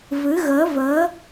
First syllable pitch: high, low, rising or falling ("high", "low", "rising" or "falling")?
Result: rising